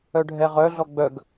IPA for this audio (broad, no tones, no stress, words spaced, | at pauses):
œɖʱɛʁœɮɔ ɡ͡bœɡ